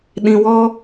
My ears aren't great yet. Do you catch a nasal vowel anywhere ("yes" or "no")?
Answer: yes